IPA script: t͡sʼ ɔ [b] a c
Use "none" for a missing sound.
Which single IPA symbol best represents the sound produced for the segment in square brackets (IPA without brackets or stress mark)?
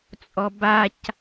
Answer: b